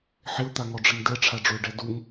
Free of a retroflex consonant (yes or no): no